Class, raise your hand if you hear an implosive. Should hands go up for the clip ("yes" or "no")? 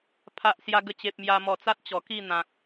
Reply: no